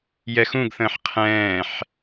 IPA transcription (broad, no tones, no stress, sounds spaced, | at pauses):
j ɛ x ũ ɡ θ ə̃ː ħ qʰ ɛ̃ː ħ